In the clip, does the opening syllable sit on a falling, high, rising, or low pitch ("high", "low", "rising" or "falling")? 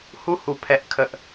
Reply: high